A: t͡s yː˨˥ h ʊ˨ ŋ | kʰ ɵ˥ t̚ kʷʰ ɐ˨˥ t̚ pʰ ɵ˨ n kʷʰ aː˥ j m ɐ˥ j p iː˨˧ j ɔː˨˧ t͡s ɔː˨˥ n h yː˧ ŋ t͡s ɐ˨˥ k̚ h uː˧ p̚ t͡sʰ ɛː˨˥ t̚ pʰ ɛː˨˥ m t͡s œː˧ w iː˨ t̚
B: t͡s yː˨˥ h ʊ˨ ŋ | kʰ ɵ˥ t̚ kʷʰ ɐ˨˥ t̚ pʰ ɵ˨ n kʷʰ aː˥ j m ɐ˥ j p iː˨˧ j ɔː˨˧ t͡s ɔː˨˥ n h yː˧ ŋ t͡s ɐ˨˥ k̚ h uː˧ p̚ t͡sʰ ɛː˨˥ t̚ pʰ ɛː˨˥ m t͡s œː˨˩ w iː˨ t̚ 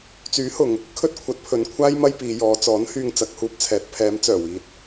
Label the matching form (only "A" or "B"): B